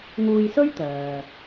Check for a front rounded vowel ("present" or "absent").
present